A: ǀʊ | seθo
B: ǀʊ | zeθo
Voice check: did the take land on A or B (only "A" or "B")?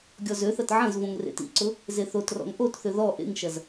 B